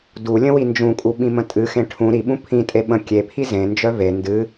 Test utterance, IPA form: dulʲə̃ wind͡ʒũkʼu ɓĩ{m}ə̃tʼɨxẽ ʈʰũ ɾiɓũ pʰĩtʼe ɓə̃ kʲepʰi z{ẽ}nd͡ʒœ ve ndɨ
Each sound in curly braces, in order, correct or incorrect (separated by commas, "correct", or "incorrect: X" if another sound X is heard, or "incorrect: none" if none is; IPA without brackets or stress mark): correct, correct